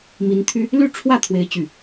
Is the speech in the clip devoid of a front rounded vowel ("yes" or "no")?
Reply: no